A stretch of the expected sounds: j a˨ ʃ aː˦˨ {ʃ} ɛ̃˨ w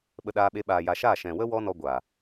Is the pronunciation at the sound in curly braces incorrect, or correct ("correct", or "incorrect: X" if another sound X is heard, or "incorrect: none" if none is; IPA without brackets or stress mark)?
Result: correct